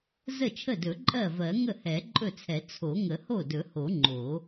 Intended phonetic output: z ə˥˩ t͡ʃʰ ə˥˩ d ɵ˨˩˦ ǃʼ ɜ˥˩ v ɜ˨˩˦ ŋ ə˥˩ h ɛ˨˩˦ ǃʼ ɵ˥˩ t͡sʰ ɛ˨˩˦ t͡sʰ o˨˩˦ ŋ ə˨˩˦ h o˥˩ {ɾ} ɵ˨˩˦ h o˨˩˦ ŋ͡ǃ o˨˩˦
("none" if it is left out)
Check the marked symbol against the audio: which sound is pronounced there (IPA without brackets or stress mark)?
d